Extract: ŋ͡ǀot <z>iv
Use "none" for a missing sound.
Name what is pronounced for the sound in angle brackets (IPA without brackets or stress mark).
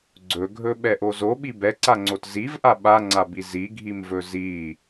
z